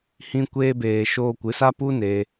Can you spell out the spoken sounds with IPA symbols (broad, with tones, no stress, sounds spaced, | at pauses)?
h ĩ˧ kʷ eː˧ b eː˨ ʃ oː˧ kʷ ɨ˨˦ s a˦ p u˦ n eː˧